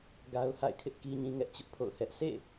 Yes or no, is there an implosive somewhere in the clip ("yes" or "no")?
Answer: no